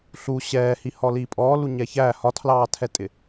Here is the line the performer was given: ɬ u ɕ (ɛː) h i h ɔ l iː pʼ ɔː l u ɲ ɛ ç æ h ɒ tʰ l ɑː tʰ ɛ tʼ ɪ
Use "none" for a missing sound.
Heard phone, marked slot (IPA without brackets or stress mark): ɛː